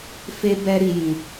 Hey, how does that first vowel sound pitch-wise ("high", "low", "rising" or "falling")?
high